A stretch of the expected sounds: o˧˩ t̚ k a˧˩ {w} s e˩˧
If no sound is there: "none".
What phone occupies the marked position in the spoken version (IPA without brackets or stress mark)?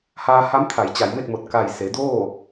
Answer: j